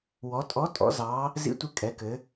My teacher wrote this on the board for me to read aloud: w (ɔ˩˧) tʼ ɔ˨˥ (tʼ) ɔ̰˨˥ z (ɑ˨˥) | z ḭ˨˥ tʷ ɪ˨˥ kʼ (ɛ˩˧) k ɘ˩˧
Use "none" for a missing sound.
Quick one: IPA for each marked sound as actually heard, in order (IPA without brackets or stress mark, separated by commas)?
ɔ˩˧, tʼ, ɑ˨˥, ɛ˩˧